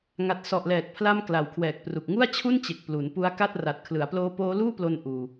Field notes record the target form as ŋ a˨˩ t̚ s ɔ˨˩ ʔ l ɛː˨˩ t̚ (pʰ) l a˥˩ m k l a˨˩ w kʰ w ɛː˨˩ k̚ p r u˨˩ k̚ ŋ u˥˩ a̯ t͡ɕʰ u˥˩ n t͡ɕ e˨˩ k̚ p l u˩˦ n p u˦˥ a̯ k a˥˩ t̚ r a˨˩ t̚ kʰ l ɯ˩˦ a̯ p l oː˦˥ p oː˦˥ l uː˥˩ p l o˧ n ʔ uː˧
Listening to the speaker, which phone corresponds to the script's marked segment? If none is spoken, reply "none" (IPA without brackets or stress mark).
pʰ